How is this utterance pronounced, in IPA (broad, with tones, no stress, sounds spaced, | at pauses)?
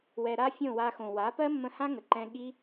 w ɛ˧ ɾ a˦ fʲ õ˦˨ w a˧ x õ˨ w a˨˦ p ɜ˦ mː ə̃˧ h ã˦ ŋ ə˨ ǃ ɛ̃˧ ɠ i˦